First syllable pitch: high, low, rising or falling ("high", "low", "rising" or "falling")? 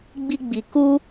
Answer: high